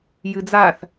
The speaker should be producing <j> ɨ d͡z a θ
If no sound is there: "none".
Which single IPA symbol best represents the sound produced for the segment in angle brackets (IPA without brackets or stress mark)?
j